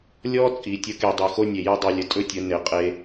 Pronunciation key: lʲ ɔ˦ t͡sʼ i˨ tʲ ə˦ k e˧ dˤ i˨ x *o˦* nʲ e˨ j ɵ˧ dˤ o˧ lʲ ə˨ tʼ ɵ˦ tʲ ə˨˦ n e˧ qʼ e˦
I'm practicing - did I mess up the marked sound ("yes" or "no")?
no